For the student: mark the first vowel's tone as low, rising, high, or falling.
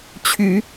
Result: rising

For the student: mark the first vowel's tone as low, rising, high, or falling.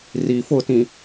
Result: low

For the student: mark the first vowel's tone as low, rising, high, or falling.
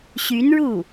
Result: rising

